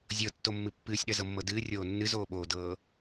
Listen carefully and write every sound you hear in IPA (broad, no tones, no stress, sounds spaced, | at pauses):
zʲ ɤ tː o mː ɨ pː ɨː sʲ ɗ ɜ z ɤ mː ɤ d ɨː rʲ oː nː ɨ z oː ɓ oː d ɤː